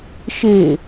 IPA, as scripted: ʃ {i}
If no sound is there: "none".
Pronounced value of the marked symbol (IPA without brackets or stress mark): e